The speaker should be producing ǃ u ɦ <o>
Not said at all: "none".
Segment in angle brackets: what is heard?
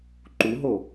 o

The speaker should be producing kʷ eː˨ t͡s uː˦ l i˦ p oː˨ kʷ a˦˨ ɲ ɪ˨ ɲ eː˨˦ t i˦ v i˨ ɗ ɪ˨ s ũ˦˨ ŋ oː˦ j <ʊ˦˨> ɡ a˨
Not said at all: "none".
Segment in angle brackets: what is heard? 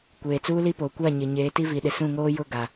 ʊ˦˨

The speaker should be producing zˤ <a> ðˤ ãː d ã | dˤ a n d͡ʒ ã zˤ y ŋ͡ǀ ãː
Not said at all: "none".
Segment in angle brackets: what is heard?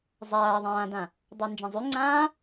aː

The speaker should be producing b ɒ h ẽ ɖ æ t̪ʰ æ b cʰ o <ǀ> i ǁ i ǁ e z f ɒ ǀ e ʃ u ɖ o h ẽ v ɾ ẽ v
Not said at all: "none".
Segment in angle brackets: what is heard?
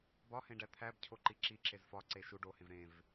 ǃ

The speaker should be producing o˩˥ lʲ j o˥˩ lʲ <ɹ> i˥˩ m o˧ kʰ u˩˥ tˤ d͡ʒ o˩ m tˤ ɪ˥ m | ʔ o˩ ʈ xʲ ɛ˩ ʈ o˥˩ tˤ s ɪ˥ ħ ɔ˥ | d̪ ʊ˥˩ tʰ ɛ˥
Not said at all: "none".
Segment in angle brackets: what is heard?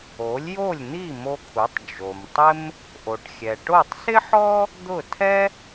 n̪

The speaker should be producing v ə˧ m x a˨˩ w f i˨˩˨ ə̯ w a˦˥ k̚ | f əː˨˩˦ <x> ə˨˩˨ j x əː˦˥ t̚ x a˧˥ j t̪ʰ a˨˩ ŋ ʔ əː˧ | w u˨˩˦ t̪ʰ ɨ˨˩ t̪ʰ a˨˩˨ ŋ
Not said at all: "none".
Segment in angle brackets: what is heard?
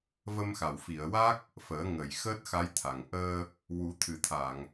ŋ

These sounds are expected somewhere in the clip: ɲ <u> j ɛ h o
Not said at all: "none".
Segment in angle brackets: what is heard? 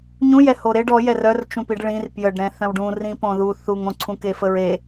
ũ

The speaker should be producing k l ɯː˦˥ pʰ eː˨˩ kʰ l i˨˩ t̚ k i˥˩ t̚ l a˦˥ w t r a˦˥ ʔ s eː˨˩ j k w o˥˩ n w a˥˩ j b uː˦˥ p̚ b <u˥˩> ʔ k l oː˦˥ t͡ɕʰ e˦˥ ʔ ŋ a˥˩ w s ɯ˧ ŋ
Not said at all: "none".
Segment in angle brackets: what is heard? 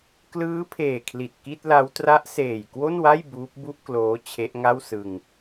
u˥˩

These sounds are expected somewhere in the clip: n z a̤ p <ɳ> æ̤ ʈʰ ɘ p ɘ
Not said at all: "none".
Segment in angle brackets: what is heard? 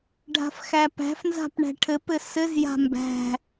ɳ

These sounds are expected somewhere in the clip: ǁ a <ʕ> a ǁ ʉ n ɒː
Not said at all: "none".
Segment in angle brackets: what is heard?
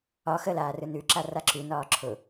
r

